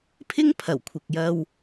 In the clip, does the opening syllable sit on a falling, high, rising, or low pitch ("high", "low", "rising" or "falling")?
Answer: high